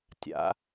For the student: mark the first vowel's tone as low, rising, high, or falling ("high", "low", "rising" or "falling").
rising